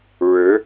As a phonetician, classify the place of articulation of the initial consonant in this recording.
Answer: retroflex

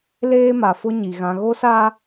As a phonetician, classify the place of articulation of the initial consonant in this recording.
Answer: alveolar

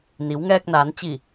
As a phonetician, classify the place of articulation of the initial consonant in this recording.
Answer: alveolar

